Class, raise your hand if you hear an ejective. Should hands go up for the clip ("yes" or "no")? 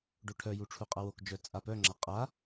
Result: yes